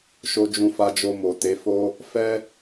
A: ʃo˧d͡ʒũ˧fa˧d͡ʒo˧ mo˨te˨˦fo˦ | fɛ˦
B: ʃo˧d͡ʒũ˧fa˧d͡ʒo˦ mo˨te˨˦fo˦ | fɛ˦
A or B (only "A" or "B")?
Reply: A